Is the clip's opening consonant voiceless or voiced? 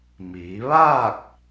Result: voiced